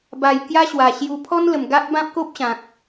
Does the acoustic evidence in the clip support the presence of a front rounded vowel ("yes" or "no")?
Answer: no